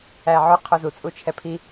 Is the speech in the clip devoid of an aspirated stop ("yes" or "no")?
no